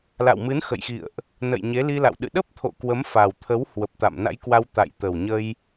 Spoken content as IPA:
la̰˧˨wmɨ˨˦nxə̰˧˨jxḭ˧˨ə̯ʔ | nə̰˧˨j ɲe˨˦li˧la̰˧˨w ɗɨ̰˧˨ɗə˦˥p̚t̪ʰo̰˧˨ kwə˨˦mfa˨˩wt̪ʰə˨˦w hwə˨˩p̚t̪a̰˧˨mna̰˧˥jkwa˧w t̪a̰˧˨jt̪ə˨˩wɲə˧j

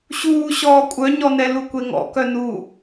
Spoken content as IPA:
ɕuːɕɔː kʷʼœɲɔnɛ lukʷeŋɔ̰kœ nu

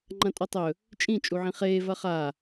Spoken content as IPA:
ŋ͡ǃɐ̃tʼɵtˤɵ | t͡ʃʼĩ t͡ʃʼuʕĩχeː vɐχa

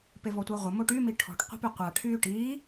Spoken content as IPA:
pevɔtʷɛʁʷə moʈymi ʈʰɔ̤ʈqʷe̤py qʷa ʈʰyːʈiː

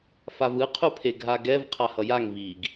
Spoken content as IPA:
favɯ qʰupʰeɡʱaɡɛv qʰahʌjaŋ viɡ

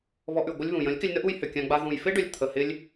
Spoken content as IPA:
βɔ˧ʔʉ˨ɡʷɪ˦lʲβũ˨ jə̃˨˦lʲkɪ˧lʲnə˦ʔu˧j hʏ˨kʲã˧ɡ͡ba˧ ðũ˨jfɪ˦ɖʏ˨lʲ t̪ʰə˨hɪ˧lʲ

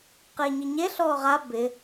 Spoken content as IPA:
qɪːɲiɲeɬɔː ʁa bɪ

